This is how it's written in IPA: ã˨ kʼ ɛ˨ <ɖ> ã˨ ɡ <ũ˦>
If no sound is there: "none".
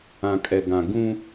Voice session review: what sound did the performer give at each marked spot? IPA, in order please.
ɡ, ũ˦

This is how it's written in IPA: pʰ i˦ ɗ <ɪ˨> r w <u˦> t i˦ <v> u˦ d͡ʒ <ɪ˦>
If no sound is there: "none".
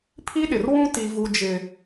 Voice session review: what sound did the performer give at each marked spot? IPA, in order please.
ɪ˨, ũ˦, v, ɪ˦

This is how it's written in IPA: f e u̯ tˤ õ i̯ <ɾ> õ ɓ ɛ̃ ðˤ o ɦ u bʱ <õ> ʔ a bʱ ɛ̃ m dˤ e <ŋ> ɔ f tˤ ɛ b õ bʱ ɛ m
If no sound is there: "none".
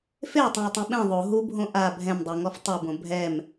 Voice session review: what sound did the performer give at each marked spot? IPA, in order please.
tˤ, õ, ŋ

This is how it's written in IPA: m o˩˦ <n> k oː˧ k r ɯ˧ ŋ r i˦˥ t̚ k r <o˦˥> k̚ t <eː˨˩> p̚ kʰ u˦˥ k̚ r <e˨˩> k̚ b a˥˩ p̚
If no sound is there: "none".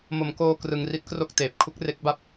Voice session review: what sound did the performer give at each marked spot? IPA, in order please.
m, o˥˩, eː˨˩, e˦˥

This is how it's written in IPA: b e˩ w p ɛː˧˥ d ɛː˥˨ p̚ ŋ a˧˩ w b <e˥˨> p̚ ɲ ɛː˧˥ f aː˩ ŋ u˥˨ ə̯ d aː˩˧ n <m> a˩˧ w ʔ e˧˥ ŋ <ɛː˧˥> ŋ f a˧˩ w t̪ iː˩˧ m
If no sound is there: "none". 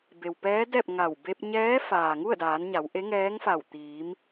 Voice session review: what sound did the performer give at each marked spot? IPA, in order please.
e˧, ɲ, ɛː˧˥

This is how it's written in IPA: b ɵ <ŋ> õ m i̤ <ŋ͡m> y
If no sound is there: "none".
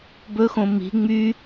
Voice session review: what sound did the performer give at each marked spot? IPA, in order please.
x, ŋ͡m

